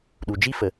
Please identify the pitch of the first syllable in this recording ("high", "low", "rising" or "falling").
low